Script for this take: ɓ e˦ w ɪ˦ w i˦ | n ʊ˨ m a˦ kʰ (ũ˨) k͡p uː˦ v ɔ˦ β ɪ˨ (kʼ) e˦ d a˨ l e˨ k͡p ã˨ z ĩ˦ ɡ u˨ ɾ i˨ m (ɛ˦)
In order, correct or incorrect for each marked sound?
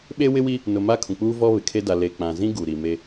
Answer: correct, incorrect, incorrect

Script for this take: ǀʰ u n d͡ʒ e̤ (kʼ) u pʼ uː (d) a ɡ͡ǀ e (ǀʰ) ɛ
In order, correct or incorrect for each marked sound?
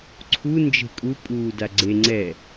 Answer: correct, correct, incorrect

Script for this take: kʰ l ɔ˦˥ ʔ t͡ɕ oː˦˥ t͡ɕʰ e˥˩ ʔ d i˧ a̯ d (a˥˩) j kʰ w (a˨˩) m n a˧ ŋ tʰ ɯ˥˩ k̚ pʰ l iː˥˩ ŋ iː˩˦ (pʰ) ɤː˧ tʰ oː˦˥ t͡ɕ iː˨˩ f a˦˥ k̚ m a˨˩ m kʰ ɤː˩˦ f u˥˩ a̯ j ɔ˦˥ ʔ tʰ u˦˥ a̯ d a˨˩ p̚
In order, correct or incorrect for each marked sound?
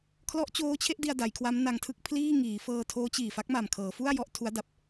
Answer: incorrect, incorrect, incorrect

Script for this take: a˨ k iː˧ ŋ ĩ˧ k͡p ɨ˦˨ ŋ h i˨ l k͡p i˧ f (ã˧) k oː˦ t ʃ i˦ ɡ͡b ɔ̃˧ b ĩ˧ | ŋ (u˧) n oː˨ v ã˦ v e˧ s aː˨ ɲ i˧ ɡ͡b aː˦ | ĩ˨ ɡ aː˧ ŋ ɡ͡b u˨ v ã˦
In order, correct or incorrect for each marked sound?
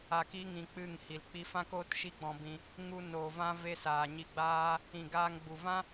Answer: incorrect, correct

